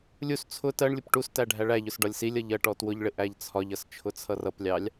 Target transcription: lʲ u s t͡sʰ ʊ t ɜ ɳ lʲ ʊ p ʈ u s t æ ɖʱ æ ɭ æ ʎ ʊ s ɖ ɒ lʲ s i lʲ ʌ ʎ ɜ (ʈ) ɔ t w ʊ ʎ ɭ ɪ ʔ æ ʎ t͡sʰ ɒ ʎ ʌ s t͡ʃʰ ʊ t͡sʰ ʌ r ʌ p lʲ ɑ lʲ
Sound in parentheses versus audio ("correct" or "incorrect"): correct